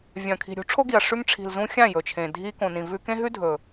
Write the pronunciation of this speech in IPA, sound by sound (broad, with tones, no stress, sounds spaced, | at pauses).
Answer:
vʲ ɐ̃˨ kʰ i̤˨ ɾʲ ṳ˨˦ ʈ͡ʂʰ o˦ ɡ i˨ ɐ̯ ʂ ʉ˧ ŋ ʈ͡ʂʰ i̤˨ l z ũ˧ xʲ ã˦˨ j ɵ˨ t͡ʃʰ ẽ˨ dʱ i˧ k õ˨ n ĩ˨ v ʉ˧ k ẽ˦ ɦ ʉ˦ dʱ ɵ˨